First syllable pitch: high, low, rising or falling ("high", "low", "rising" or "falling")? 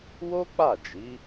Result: high